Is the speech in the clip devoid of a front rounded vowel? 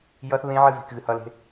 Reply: yes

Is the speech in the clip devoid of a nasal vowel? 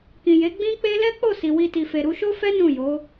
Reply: no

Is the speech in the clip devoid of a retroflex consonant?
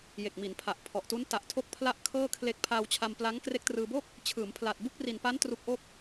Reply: yes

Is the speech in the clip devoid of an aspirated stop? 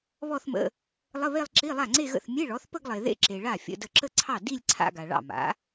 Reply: no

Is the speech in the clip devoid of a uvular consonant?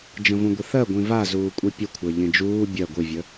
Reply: yes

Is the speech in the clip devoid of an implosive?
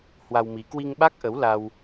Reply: no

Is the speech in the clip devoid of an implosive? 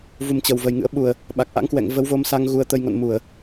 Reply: no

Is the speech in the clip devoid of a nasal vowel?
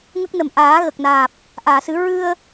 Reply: yes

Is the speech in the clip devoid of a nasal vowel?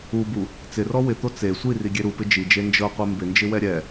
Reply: yes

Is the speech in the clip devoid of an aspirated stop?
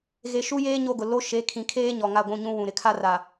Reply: no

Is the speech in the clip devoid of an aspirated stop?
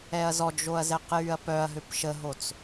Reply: yes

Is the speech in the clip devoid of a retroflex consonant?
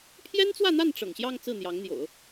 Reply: no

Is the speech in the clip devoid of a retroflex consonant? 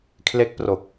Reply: yes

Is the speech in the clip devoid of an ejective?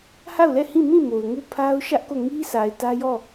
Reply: yes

